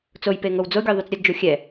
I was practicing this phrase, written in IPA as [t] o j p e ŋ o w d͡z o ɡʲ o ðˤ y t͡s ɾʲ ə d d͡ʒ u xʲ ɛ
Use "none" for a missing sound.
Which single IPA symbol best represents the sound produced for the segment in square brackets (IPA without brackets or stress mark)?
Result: t͡s